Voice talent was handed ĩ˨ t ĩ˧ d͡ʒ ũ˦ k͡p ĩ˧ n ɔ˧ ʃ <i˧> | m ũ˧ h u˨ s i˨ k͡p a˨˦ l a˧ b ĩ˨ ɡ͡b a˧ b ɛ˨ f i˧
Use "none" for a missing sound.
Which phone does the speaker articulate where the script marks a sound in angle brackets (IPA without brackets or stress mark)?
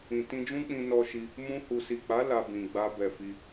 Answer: i˧